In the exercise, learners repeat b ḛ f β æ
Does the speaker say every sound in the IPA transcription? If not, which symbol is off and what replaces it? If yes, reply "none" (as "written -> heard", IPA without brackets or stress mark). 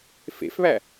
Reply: b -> f